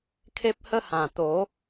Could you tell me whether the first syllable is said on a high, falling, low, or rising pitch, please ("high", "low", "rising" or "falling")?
high